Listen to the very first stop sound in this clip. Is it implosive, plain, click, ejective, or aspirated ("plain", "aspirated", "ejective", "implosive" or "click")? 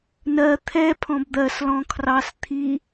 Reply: aspirated